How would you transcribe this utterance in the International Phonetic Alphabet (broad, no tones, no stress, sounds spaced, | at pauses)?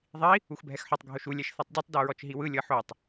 ðˤ i | u x bʱ ɛ x ħ ɤ tˤ ɡʱ o ʃ u lʲ ɛ ʃ θ ɔ tˤ dʲ ɛ tˤ d o ɹ ɔ t͡ʃ ɦ i w ɯ lʲ ɤ ħ o tˤ